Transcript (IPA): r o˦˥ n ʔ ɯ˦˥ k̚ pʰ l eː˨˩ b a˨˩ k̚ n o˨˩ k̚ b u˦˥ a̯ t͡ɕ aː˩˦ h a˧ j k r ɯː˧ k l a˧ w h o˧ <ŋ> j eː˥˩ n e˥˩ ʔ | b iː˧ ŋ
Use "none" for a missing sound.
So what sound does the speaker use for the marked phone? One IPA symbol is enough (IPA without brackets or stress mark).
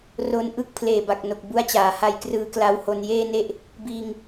n